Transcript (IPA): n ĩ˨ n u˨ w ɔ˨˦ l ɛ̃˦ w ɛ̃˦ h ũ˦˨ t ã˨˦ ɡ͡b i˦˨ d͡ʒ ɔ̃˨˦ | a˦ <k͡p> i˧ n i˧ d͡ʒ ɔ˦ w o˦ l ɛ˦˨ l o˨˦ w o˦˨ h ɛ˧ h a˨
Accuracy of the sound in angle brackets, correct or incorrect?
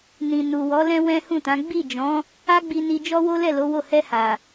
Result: incorrect